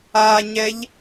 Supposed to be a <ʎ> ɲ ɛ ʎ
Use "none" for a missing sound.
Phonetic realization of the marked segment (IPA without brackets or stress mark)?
none